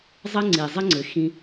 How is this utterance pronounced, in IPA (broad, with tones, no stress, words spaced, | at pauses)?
zˤə˦ŋ͡ǀi˨zˤə˦ŋ͡ǀɘ˨ xĩ˧